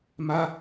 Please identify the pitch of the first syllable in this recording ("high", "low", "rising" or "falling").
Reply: high